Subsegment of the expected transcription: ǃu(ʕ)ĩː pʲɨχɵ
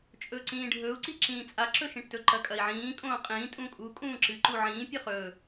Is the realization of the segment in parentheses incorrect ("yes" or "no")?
no